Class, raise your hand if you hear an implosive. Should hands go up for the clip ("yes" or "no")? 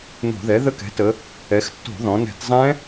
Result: no